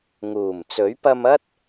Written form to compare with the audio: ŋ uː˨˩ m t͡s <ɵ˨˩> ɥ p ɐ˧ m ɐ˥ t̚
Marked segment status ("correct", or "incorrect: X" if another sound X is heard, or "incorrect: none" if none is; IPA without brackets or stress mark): incorrect: ɵ˨˥